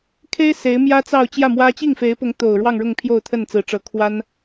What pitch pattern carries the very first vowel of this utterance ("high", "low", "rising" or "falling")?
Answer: high